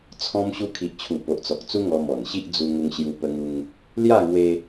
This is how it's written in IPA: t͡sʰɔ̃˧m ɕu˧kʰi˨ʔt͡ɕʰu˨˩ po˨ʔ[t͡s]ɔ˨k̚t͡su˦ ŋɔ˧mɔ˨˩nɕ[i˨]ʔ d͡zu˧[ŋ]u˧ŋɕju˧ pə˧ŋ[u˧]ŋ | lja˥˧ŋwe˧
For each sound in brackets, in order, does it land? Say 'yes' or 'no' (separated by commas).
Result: yes, no, yes, yes